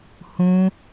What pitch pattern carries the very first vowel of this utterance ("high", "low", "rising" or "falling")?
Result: high